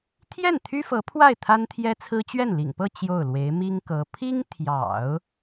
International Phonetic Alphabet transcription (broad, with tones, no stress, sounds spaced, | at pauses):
t̪ʰ j ɛ˥˩ n t̪ʰ y˥ f ɤ˧˥ pʰ w a˥˩ ɪ̯ t̪ʰ a˥ n t̪ʰ j ɛ˥ t͡sʰ ɹ̩˥ t͡ɕ ɥ ɛ˥˩ n l ḭ˨˩ ŋ p ɤ˥˧ t͡ɕ j o˥˩ ʊ̯ l w e˧˥ ɪ̯ m i˥ ŋ k ɤ˧˥ pʰ i˥ ŋ t̪ʰ j ɑ̰˨˩˦ ʊ̯